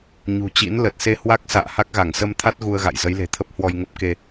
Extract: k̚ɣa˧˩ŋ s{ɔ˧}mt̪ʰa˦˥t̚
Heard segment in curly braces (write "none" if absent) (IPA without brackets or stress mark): ə˧